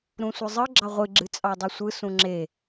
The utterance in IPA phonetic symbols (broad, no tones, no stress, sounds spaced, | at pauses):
ɾ ũ sʷ ɯ zˤ ɯ ɡ͡ǁ ɑ ʁʷ ɨ ɡ͡ǁ ɨ t͡sʼ ɑ dˤ ɯ sʷ ɯ s ũ ŋ͡ǁ e